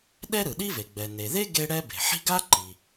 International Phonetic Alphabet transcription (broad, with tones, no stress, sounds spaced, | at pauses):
ɗ ɛ˥ ɾ ɯ˩ ɗ i˥ v e˩ ɡ͡b ɛ˩ n e˩ ð e˥ ɡ e˥ ɽ ɛ˥ b e̤˩ ħ i̤˥ ɡ a˥ ǃ i˩